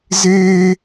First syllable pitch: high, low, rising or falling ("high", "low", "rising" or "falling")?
high